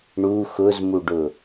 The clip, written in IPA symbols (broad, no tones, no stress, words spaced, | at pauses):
ɳu xʊzmuɖʊ